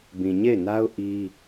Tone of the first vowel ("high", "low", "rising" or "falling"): low